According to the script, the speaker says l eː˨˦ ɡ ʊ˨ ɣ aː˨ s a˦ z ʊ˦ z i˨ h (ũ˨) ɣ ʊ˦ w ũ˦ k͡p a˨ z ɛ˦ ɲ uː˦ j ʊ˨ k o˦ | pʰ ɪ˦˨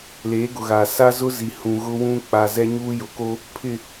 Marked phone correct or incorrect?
correct